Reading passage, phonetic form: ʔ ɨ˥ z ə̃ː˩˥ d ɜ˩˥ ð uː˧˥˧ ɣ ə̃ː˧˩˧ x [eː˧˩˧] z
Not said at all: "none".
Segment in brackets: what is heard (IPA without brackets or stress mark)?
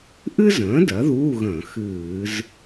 ɨː˧˩˧